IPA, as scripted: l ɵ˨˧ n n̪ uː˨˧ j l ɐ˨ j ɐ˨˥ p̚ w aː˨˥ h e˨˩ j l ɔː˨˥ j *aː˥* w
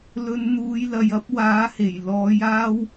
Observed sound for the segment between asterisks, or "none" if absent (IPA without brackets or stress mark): aː˥